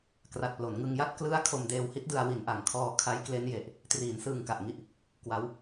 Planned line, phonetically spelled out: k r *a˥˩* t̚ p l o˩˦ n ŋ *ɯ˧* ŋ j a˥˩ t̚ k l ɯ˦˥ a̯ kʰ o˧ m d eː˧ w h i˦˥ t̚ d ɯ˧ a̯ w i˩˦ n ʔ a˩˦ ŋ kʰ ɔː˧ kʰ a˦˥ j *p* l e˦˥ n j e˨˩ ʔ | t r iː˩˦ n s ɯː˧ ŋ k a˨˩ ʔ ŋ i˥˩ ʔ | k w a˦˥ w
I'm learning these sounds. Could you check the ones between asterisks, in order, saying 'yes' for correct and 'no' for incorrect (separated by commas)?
no, yes, no